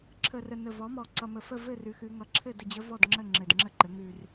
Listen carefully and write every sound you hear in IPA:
ǁʰə˨˩rə˨˩nə˨˩ vɔ˩˥mɔ˨˩ ǀʌ˨˩mə˨˩fə˥˩ vɘ˥˩rʉ˩˧xʉ˩˧ ŋʌ˩˥ǁʰɘ˥˩ də˥˩d͡ʑə˦˥ vɔ˥˩dŋ͡ǁə˥˩ ŋ͡ǁɘ˨˩dŋ͡ǁə˥˩ǃɘ˩˥ ŋʉ˨˩r

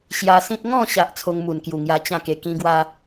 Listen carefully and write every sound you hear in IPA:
ɕja˧sĩ˦t̚ ŋɔ̃˥˧ɕa˨ʔ t͡sʰo˧ŋmu˨˩n kju˨˩ŋja˧ t͡ɕã˥˧ke˧kĩ˦ɡwa˦

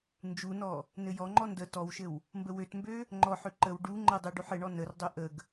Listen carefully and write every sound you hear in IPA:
nd͡ʒunɔ | nɘjɔŋ͡ǃɔ ndə tɔwʃɘw | mbəwøtmbø | ŋ͡ǃɔħø ǃəw ɖu ŋ͡ǃədˤu ɖuħɘɳɔ nərdˤø ʔəɡ

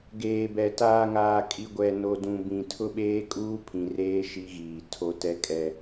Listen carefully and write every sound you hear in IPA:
ɡeː˨bɛ˨ taː˨ŋaː˨ kʼi˨ɡʷɛ˨ no˨ dũ˨bĩ˨tʰʊ˦ ɓeː˦kʼuː˦pʰĩ˨ reː˦ ʃi˦ɣiː˨tʰo˦ tɛ˦kʼɛ˦

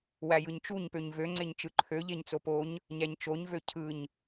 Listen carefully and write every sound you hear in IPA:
wæjɯɲt͡ʃuɲpøɲ vøŋ͡ǀeɲt͡ʃɯ ǃʰøʎeɲ t͡sopoɲ | ɲæɲt͡ʃoɲvø cʰɯɲ

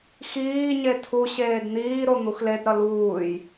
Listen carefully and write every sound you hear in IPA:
xiːɲe tʰuɕeːd n̪iːɾo n̪uxledɾʌ luːj

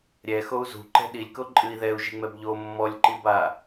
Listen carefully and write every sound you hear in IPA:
ɾʲɛ xou̯zṳǃɛ̤ ɗilʲko ǃʼɨi̯ ðɛu̯ʒiŋ͡mɛb ʎo mːɔlʲǃiba

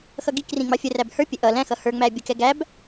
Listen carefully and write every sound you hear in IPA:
xʌɡikrĩ ŋ͡mɑfʲəræb hə˞pʲɛ ʔʌ læ̃xʌ hə˞ŋ͡mæ bʲəkɛ ɡæb

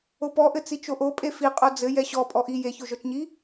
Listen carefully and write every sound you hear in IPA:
opɔʔɘ t͡sit͡ʃoʔo pʼefiqʼo d͡zɘ jɛɕɔ pʼɔʔi jeçoʒɔt͡ʃɲi

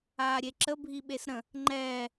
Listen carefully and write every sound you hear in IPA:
aːɾʲeǁə bʱiɓesɾə̃ | ŋ͡ǃɛː

